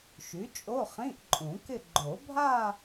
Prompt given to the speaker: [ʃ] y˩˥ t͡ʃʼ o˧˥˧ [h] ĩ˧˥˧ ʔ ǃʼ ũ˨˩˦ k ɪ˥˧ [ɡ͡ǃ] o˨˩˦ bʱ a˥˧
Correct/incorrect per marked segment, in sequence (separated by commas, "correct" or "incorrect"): correct, incorrect, correct